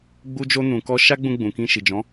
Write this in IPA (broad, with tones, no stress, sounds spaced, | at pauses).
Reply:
ɡ͡b u˧ d͡ʒ o˧ n ũ˨ k ɔ˧ ʃ a˦ ɡ͡b ũ˧ ɡ͡b ũ˨ k ĩ˧ ʃ i˨ d͡ʒ ɔ̃˨˦